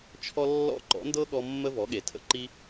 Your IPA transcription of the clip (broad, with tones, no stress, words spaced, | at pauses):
t͡ʃʰɔ˦lːɔ̰˦˨ ǃɔ̰˨˦ndɤ˦ɠɔ˧ mːə˦vɔ˨˦ɠe˨ tʰə̰˧ ǃi˦